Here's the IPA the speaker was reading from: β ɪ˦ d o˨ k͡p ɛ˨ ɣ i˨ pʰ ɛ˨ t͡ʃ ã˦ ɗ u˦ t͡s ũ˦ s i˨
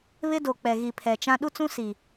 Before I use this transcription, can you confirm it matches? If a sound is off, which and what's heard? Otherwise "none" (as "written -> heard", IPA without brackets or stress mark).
none